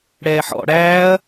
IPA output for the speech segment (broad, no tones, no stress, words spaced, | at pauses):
ɽɛːħɔ̰ ɽæːɐ̯